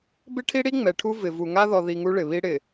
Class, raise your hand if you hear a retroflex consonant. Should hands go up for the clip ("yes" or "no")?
yes